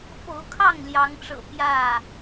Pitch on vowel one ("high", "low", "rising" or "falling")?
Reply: rising